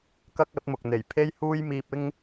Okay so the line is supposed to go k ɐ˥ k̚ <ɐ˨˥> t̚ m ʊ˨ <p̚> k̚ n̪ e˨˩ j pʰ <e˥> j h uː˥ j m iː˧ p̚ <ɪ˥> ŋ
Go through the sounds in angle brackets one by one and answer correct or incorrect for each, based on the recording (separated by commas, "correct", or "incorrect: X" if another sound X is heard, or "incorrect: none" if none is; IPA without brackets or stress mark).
correct, incorrect: none, correct, correct